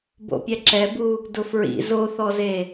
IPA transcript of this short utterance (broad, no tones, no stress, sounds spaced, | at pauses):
b o̰ pʲ ɛ ǁ ɛ b u | d ʊ f ɹ ḭ z o θ ɔ z e